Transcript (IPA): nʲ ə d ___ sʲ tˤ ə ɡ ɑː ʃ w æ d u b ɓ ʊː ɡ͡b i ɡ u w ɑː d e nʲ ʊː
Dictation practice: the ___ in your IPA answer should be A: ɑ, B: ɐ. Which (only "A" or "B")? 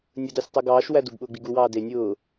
A